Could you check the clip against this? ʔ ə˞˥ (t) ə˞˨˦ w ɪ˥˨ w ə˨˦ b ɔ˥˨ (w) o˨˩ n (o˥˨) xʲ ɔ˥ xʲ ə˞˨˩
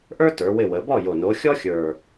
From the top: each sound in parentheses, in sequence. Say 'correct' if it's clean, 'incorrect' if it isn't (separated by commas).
correct, incorrect, incorrect